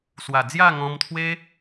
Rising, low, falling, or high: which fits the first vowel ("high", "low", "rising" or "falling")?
low